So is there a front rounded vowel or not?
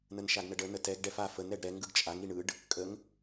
no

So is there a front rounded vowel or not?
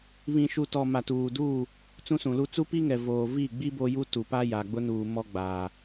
no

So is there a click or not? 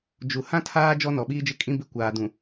no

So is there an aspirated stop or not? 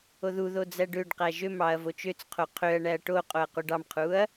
yes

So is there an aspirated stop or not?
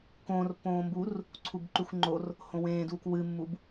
yes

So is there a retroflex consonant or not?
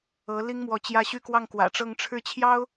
yes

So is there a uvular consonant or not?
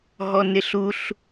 no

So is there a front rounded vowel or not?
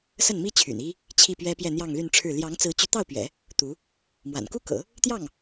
yes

